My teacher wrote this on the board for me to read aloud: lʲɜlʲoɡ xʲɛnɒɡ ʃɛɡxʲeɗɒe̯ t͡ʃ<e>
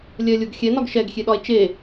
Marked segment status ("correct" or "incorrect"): correct